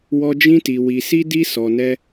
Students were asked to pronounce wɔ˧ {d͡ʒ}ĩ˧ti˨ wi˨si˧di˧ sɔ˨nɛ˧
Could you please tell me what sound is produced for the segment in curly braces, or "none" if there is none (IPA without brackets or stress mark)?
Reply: d͡ʒ